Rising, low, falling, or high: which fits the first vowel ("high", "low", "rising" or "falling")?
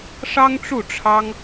high